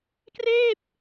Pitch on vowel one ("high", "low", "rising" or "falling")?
falling